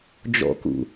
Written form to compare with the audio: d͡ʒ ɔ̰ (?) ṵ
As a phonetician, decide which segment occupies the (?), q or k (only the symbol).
k